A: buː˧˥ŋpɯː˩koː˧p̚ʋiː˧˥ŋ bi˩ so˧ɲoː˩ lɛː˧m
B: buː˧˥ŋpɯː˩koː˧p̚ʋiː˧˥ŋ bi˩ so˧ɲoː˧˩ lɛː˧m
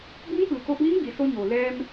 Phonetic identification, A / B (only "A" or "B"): A